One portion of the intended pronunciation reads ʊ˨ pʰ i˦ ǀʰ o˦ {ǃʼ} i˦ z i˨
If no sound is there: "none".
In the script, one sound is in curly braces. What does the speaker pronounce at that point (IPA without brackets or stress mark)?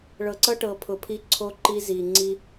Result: ǃ